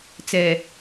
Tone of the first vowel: low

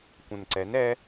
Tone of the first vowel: low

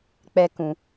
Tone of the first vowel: high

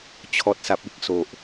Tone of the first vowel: low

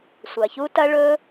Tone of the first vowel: low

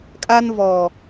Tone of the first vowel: high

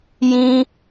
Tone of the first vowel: high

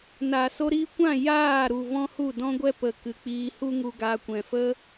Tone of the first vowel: low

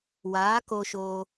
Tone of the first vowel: rising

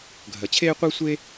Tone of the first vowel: low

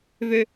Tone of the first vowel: high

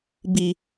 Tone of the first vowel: low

